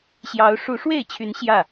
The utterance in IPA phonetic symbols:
ɕ j ɑ˨˦ ʊ̯ ʂ u˨˦ ʂ w e˥˨ ɪ̯ t͡ɕʰ y˨˦ n ɕ j ä˥˨

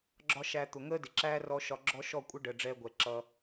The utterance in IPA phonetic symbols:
ɡ͡ǁ ɒ˦ ʃ æ˧ t̪ ʊ˨ ŋ əː˦ d ɪ˨ ǁ æː˦ r ɔ˧ ʃ ɒ˧ ɡ͡ǁ ɔ˦ ʃ ɔ˦˨ kʷʼ ə˦ ɖ ə˨ ɖ͡ʐ ɛː˧ ɡʷ ɛ˨ ǁ ʌ˧

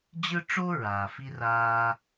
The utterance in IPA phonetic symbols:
d͡ʑ ɯ˦ ʈ͡ʂ o˦ ɹ aː˨ f i˥ r aː˦

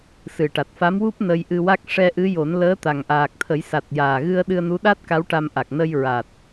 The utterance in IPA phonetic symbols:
s ɨ˨˩ ʈ a˨˩ t̚ f a˧˥ m w u˦˥ p̚ n ə˧ j ʔ ɨ˧ w a˦˥ k̚ ʂ ɛ˧ ʔ ɨ˧˥ j o˨˩˦ n l əː˧˥ t̪ a˨˩ ŋ ʔ aː˨˩ k̚ t̪ʰ ə˨˩˦ j s a˨˩ t̚ j aː˨˩ ɣ ɨ˧ ə̯ ɗ ɨ˧ ə̯ n u˧˥ ɗ a˦˥ t̚ k a˧˥ w ʈ a˧ m ʔ a˨˩ k̚ n ə˧ j ɹ a˨˩ t̚

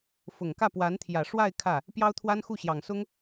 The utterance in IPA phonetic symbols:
f ʊ˨˩ ŋ k ä˥˩ p w a˧˥ n t̪ʰ j ä˨˩ ʂ w a˥˧ ɪ̯ kʰ ä˥˩ | p j ɑ˥ ʊ̯ t̪ʰ w a˥ n x u˥˩ ɕ j ɑ˨˩ ŋ s ʊ˥ ŋ

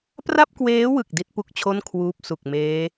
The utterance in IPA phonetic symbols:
p r a˥˩ p̚ k w eː˦˥ w ɯ˨˩ k̚ d i˥˩ t̚ p u˥˩ k̚ t͡ɕʰ o˥˩ n kʰ w uː˦˥ p̚ s u˨˩ k̚ m eː˦˥

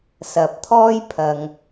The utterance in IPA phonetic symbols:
s ɐ˨ p̚ t̪ʰ ɔː˥ j pʰ ɐ˨ ŋ

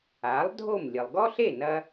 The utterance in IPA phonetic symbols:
a˩˥ lˠ dʱ o˥˩ m lʲ ɨ˩ lˠ ɡ ɔ˥ ɬ e˥˩ n ɐ˧

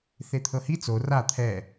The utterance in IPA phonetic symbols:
θ e t̪ʰ ɤ h i t͡s o r a t̪ʰ ɛ

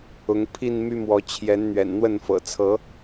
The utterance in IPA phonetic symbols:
ʊ˨˦ ŋ pʰ i˥˨ n m y˦ m w ɔ˨˦ t͡ɕʰ j ɛ˨˦ n n̪ ɥ ɛ̰˨˩ n n̪ w ə˥˨ n f ɤ̰˨˩ t͡sʰ ɤ˨˦

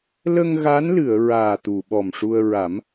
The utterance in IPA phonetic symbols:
l ə˧ ŋ ɣ a˧˥ n l ɨ˨˩˨ ə̯ ɹ aː˨˩ t̪ u˨˩˨ ɓ ɔ˨˩ m ʂ u˧ ə̯ ɹ a˨˩˦ m

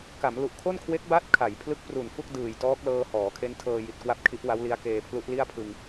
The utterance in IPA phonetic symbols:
k a˩˦ m l u˨˩ ʔ kʰ o˥˩ n kʰ w e˦˥ k̚ b a˦˥ t̚ kʰ a˩˦ j pʰ l ɯ˦˥ k̚ p r u˨˩ n f u˥˩ k̚ d ɯː˨˩ j t ɔː˦˥ k̚ l ɤː˧ h ɔː˩˦ kʰ e˦˥ n tʰ ɤː˧ j i˨˩ t̚ k w a˥˩ p̚ kʰ i˦˥ ʔ w a˦˥ w l i˦˥ a̯ k eː˧ pʰ l u˦˥ ʔ l i˥˩ a̯ pʰ ɯ˧ ŋ

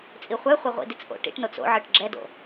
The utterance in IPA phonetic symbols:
t͡sʼ i χʷ ɛ χʷ ɛ ʁʷ ḭ d i t͡s ʔ o̰ ʈ ḭ ʈ n o t͡s o̰ ʕ ɯ ʈ ɡ͡ǁ ɛ d o̰

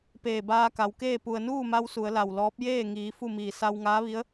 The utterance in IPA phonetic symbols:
p eː˧˩ b aː˧ k a˩˧ w k eː˥˨ p u˩ ə̯ n uː˥˨ m a˧ w s u˩˧ ə̯ l a˩ w l ɔː˧˥ p̚ j eː˥˨ ŋ iː˩˧ f u˥˨ m iː˧˩ s a˧ w ŋ aː˧˥ ʋ i˧˥ ə̯

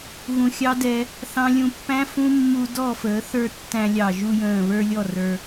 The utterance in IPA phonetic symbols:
ɣ ũ˨ xʲ ɑ˦ d ɛ˧ | θ ɑ̃˧ lʲ ũ˧ pː æ̃˦ f ũ˦ mː u˧ d ɔ˦˨ f əː˨˦ θ ə˞˦˨ tː æ̃˧ lʲ ɑ˨ ʒ u˧ j ə̃ː˨ β ə˞˦ lʲ ɔ˦˨ r ə˞˧

